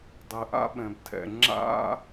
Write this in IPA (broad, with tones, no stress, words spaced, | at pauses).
dˤɘ˩ʔa̰˥ɓɛ̃˩btʰɛ̰˩ ŋ͡ǁa̰˥